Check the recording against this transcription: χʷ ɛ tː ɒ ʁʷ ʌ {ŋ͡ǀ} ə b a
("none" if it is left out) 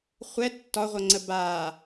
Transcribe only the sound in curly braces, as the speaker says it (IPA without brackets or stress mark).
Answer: ŋ͡ǀ